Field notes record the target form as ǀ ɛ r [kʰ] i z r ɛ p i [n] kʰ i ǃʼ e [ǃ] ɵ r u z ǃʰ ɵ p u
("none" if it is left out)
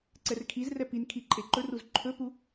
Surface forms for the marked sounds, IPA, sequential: kʰ, n, ǃ

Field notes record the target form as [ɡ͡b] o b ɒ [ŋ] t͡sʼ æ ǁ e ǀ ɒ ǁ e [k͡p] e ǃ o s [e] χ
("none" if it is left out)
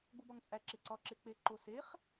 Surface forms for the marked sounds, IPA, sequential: ɡ͡b, ŋ, k͡p, e

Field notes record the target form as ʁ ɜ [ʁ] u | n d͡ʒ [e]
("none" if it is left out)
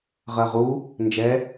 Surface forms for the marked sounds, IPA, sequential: ʁ, ɛ

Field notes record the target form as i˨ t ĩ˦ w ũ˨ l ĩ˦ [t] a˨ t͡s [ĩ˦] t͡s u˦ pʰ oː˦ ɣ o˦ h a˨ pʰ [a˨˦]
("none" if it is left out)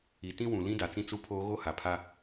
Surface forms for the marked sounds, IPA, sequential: d, ĩ˦, a˦

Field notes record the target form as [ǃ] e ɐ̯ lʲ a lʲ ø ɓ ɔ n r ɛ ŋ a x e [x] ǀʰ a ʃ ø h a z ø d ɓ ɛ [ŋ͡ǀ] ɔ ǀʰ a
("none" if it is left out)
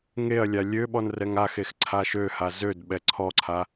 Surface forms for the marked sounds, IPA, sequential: ŋ, x, ǀʰ

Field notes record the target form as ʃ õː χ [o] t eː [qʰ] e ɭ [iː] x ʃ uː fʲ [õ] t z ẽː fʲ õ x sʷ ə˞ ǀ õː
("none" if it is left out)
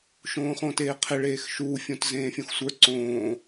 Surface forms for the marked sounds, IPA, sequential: õ, qʰ, eː, õ

